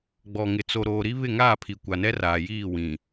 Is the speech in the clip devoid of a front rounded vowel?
yes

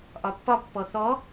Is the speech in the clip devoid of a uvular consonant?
yes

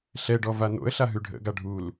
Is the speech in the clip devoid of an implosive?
yes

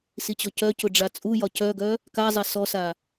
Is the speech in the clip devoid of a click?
yes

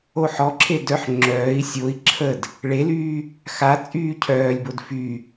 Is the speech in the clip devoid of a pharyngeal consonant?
no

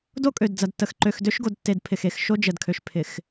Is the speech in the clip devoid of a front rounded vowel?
no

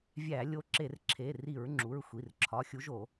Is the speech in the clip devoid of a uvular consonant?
yes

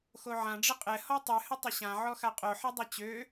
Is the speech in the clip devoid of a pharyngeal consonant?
no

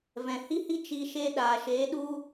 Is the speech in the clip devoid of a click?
yes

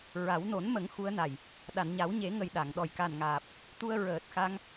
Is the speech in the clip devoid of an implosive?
no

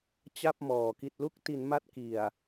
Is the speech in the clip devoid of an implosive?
yes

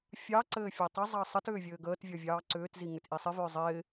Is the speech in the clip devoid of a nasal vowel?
yes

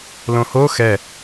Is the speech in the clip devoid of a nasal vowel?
no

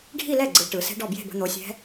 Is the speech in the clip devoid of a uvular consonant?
yes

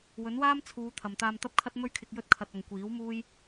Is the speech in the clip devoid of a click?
yes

